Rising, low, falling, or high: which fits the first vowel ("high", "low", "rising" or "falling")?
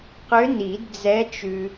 rising